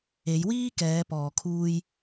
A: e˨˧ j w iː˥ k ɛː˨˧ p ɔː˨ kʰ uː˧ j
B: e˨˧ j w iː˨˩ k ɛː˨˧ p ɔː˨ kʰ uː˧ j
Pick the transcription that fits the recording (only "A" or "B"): A